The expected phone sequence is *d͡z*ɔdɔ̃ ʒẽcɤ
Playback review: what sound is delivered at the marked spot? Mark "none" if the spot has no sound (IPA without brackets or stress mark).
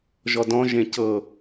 ʒ